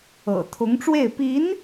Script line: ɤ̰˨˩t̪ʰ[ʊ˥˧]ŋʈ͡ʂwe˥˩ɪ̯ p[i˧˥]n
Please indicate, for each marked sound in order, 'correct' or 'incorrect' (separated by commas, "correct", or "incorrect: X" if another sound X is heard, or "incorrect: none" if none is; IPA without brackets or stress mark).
incorrect: ʊ˧˥, correct